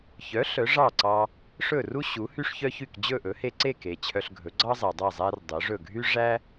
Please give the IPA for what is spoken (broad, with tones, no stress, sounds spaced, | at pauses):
ç œ˩˥ ɬ œ˩˥ ʐ ɑ˥˩ ǀ ɑ˧ | ʂ ɵ˥˩ r u˥ ɕ u˩˥ h y˥ ʂ ç œ˥ ç y˥˩ k d͡ʑ ɵ˥˩ ʔ ɵ˩˥ h e˧ ǀ e˥˩ k e˩ t͡ɕʰ œ˧ ɬ ɡʱ ɵ˩˥ ɡ͡ǀ ɑ˥ zˤ æ˩ dˤ æ˥˩ zˤ æ˥ r dˤ œ˩˥ ʐ ɵ˥˩ ɡʱ y˥ ʐ æ˥